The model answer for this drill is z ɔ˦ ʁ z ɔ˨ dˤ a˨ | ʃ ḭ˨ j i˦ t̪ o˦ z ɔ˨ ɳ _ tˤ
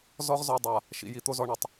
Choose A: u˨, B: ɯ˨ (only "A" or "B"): B